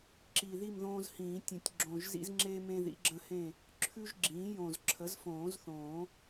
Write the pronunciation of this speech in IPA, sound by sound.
ǁi˨˩ ði˥˨mðõː˦zhĩː˨˩˦ tʲə̃˨˩˦tʲɡ͡ǁõ˨˩ʒzḭ˦z ŋ͡ǁe˦ mẽ˦ðḭ˩˥ɡ͡ǁə̃˦hẽ˥˨ | ǁʰʉ˦ʒɡ͡ǁĩː˩˥jõ˨˩z ǁʰə˩˥zfõː˨˩˦zθõː˨˩˦

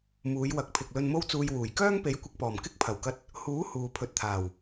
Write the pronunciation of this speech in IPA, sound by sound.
muː˨˧jwɐ˨˥k̚pʰɪ˨k̚ lɵ˨nmo˧wt͡suː˨j wuː˨˩jkœː˥ŋ pe˨˥jkʷɪ˨k̚pɔː˨˩m kɪ˥k̚pʰɐ˨˩wkɐ˧t̚ | huː˨˥ huː˨pʰɵ˨t̚t̪ʰaː˨˩w

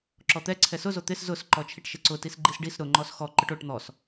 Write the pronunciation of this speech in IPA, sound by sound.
ǁɔt̪ɛ ǀʰɛsʊzo t̪ɪs zʊs ǃɔt͡ʃʰiʈʃɪǀʊ tisɡ͡ǃisɖis ɾʊ ŋ͡ǃɔsxɔ ǃʊʈoʈ n̪ɔs

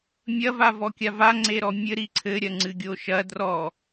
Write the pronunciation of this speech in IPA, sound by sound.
mʲɐ vavɔkʲava ŋ͡ǀeɾɔmʲɘ ɾiǀʰɘ ɾʲɐŋ͡ǀɨɡʲoʃɐ drɔ

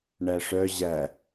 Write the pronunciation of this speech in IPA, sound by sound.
ɳæʂœ ʑæ

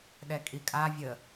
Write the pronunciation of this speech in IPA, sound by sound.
ɗɛkʼikʼa vʲə

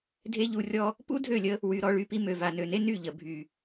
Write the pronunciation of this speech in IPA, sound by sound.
dʱe˦ʎu˧rʲɔ˦ | pṵ˦dʱø˦˨lʲə˧ | wy˧ ɾɔ˧ɭy˧pi˧ mø˨va˨nø˨ne˦ ny˦˨ʎə˨ bʱy˨

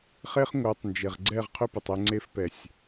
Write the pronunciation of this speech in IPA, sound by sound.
χe˦χŋʷœ˨˦tˤnd͡ʒe˨ʁ ɡ͡ǀɛ˦˨ʁqʰʏ˦pə˨tˤɛ˧ ŋ͡ǀe˧fpɛ˨sʲ

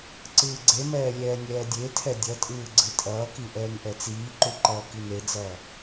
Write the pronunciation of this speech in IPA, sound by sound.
ǀɯːɡ͡ǀemɛː lʲɛːnʲɛːdʲetʰɛ dʲʌtʼɯː ɡ͡ǀɯtʼʌːki ʔɛːŋʔɛt͡siːǃu ǃʌːkined͡zʌː

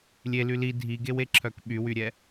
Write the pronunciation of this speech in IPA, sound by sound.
lʲely li dʱiɡeweǁʰœk ɓywyɾʲɛ

